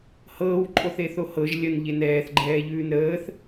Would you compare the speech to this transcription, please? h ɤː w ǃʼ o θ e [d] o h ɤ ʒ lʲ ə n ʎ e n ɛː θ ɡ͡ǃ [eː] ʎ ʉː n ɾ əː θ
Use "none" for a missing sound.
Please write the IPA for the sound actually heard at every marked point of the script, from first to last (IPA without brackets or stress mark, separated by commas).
θ, ɛː